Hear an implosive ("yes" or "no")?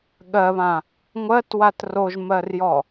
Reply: yes